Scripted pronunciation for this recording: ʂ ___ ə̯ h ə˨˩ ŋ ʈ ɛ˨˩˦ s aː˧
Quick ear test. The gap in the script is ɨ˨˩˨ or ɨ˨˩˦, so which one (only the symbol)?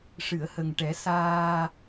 ɨ˨˩˨